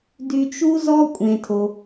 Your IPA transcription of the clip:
dy˧t͡ʃu˦zɔ˦ kʷʼẽ˧tʰo˧

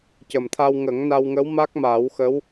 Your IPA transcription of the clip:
cə˨˩mt̪ʰa˧wŋə˨˩˦ŋ na˧wŋə˧˥w ma˦˥k̚maː˨˩˦wxə˧˥w

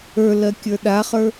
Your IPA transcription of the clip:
ə˞lɜkʲə˞ ɗaχə˞

